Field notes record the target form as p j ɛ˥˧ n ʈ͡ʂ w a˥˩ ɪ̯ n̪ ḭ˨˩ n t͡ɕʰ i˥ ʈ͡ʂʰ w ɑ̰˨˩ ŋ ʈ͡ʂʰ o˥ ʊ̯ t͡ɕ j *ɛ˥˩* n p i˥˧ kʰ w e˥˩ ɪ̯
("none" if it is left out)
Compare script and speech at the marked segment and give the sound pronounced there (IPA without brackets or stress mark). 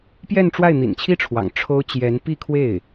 ɛ˧˥